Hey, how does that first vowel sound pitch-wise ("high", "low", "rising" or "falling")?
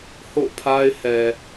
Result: falling